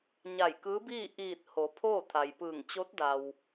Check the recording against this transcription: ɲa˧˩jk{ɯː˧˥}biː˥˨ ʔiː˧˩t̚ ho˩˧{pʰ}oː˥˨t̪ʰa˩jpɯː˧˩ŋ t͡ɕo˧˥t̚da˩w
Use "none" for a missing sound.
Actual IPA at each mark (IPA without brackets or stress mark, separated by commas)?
ɯː˧˥, pʰ